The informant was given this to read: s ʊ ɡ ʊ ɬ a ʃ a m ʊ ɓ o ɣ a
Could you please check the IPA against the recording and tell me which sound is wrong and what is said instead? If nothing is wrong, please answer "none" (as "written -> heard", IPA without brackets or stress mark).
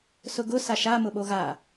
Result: ɬ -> s